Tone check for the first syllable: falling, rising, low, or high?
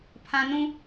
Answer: high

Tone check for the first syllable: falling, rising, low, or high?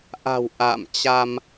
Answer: low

